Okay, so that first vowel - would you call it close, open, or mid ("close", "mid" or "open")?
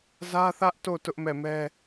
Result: open